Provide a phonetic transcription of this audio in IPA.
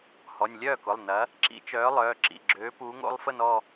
h ɔ˩˧˩ nʲ lʲ œː˥˩ k ʊ˩˧˩ lˠ n ɐ˨˥ | ǁ ḭ˨˥ t͡ʃ œː˨˥ lˠ œː˩˧˩ ǁ ḭ˩˧˩ ɡ͡ǁ øː˨˥ p uː˨˥ ŋ o̰˨˥ lˠ f ə˥˧ n ɔ˥˧

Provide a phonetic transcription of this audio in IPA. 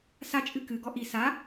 s a t͡ʃʼ ɨ k ɨ ɡ ɔ ʔ i s a

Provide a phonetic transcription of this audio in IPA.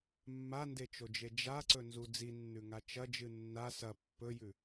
mː a n d e t͡ʃ o d͡ʒ e d͡ʒ a ǀ ɵ n z u d͡z i nː ʉ ŋ a t͡ʃ ɐ d͡ʒ ɨ nː a s ɐ pː ɵ j ʉ

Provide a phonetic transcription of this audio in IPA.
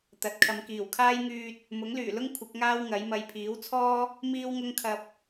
t̪ ɐ˨˥ t̚ kʰ ɐ˨˧ m k iː˨˩ w kʰ aː˥ j ŋ yː˧ t̚ | m ʊ˨˥ ŋ l yː˨˩ l ʊ˥ ŋ kʷʰ ɪ˨˥ k̚ ŋ aː˥ w ŋ ɐ˨˥ j m ɐ˧ j pʰ iː˨˥ w t͡sʰ ɔː˥ | m iː˥ w ŋ ʊ˥ ŋ kʰ ɐ˧ p̚

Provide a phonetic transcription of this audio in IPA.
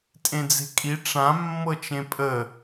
tʼ ẽ d͡z e̤ kʼ i ʈ͡ʂ ã mː ɤ t͡ʃ ẽ pʼ ə

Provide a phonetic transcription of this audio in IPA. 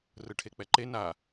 r ɯ ʈʰ e k͡p ɛ ǃ e n a

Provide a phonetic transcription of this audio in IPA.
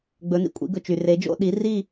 ɡ͡b ɵ˨˥ n ḭ˨ kʷʼ ḭ˨˥ ɡ ɵ˨ t͡ʃ y˨ r e˨˥ d͡ʒ o̰˥˧ ɗ i˨˥ r i˥˧

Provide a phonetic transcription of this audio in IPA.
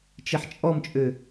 t͡ʃ e ħ t͡ʃʼ ɔ m t͡ʃʼ ø

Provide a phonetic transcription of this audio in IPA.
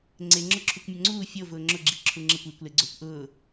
ŋ͡ǀ e ŋ͡ǁ ʊ ǁʰ u kʷ mʲ ʊ ŋ͡ǀ uː fʲ o v ʊː ŋ͡ǁ ʊ ɡ͡ǁ i ǁʰ u ŋ͡ǁ ɪ kʷ iː kʷ l e ɡ͡ǀ o kʷ ʔ ʊː

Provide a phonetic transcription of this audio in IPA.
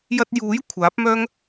j ɐ˧ t̚ j uː˨˥ j kʷʰ aː˨˥ p̚ m œː˥ ŋ

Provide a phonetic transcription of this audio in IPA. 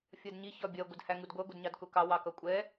fʲ ɜ d ɲ i ç ɒ bʲ ɜ ɡʷ ə d h æ ŋ u d ɡʷ ɜ ɡʷ ɪ d ɲ ɑ d k ʊ k ɑ w ɑ k ʌ kʷʼ ɛ

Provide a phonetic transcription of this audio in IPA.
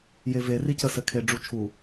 j e v e r i c ə s ɘ kʰ e ɖ͡ʐ u t͡ʃʰ u

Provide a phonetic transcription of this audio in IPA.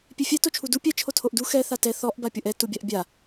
pʲ e fʲ ɛ t o t͡ʃʰ u d u pʲ ɛ t͡ʃʰ o tʰ o ʔ d u x ɛ θ a t ɛ θ ɔ ʔ b a pʲ o ʔ ɛ t u bʲ a ʔ bʲ a

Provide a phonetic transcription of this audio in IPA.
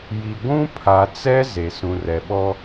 j i˨ ɡʷ ũ˦ pʰ a˨ t͡s ɛ˦ z e˨ s ũ˨ r ɛ˨ ɓ ɔ˦

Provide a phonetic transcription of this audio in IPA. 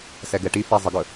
s ɛ ɡ ɛ ʈ i f ɛ zˤ ə ɡ ɵ

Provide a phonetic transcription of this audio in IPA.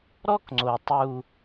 ɾ ɔ˦ k ŋ͡ǀ o˨ tˤ u˦

